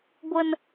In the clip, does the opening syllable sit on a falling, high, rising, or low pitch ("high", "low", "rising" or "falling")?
low